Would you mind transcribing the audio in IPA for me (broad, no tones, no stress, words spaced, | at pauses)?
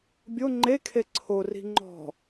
bʲo ŋ͡ǃekʰe ǀʰori̤ ŋ͡ǃɔ̤